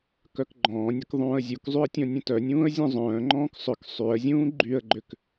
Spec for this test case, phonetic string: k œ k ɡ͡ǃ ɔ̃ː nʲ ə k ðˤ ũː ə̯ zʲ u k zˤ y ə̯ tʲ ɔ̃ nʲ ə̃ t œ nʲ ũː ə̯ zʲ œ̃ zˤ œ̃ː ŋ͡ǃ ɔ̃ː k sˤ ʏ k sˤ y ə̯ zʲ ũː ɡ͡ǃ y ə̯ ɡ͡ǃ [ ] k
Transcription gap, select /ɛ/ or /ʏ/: ʏ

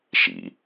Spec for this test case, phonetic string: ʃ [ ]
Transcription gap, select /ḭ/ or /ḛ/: ḭ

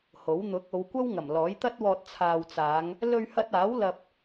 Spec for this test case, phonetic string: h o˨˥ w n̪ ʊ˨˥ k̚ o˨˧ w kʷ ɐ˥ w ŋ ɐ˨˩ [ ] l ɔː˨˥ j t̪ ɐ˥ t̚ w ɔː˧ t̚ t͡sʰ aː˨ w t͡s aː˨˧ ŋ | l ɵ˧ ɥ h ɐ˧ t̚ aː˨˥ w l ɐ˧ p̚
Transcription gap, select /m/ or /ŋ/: m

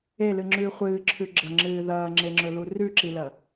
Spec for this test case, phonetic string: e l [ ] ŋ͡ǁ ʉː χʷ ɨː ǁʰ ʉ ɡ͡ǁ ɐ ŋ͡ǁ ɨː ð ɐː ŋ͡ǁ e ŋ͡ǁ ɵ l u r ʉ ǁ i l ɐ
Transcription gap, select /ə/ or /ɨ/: ɨ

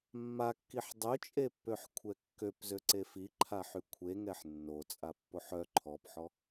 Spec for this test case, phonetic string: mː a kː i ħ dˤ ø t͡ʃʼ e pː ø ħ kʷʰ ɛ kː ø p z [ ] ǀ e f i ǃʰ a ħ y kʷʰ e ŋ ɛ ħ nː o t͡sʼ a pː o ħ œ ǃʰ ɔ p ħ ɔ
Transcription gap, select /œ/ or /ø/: ø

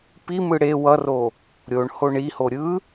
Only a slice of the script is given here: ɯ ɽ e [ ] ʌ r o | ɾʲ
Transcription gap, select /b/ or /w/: w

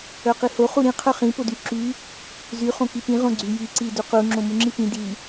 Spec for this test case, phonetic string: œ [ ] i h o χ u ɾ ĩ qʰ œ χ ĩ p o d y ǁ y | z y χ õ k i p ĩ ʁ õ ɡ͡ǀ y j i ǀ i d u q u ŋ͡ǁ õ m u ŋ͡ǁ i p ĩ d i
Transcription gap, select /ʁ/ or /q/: q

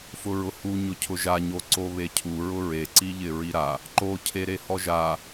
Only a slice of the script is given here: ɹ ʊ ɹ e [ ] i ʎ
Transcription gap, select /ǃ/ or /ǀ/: ǀ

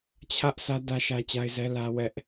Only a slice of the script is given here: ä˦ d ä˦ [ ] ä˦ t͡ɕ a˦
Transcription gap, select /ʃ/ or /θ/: ʃ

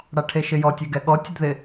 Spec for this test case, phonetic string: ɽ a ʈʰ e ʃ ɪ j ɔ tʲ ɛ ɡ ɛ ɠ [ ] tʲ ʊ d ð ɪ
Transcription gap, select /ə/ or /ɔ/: ɔ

